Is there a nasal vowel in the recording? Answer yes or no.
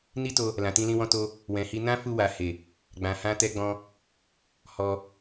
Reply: yes